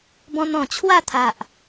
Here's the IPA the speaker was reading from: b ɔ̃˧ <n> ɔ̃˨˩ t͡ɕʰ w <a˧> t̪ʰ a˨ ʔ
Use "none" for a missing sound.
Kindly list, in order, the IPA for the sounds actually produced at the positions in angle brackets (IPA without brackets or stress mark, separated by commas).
n, a˥˧